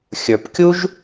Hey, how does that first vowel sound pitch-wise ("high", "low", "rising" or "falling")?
low